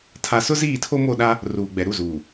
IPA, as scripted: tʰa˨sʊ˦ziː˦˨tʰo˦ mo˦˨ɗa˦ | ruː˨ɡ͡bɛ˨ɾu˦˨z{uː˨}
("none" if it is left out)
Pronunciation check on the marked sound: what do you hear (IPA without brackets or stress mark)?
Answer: uː˨